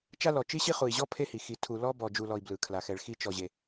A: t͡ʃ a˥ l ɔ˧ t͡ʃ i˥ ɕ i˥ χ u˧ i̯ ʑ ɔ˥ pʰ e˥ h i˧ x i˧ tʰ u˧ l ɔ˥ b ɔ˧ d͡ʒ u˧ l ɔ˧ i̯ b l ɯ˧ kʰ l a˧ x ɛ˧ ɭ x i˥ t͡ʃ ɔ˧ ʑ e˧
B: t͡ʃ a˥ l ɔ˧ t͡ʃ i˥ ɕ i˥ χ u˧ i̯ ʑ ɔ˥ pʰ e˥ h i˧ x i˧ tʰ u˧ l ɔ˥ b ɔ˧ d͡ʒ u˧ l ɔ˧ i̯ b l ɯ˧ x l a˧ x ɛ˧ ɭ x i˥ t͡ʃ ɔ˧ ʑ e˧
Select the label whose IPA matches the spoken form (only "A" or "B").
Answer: A